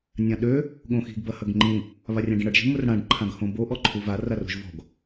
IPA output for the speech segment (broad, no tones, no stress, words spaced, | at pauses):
nʲãɗø | ɠõxi̤ɡ bɐhɐɡŋ͡ǃĩ | βarʲãɖĩɽɐɖ ʒi̤mʊrɽãɖ ǃʰãɡhõbo ʔɔǃʰuvar aro̤ʒvɔ̤ɡ